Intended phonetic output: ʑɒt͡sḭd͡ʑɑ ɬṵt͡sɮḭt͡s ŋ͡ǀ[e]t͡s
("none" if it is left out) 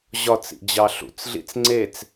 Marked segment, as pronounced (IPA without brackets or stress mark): e